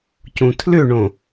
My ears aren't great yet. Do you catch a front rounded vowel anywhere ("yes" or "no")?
yes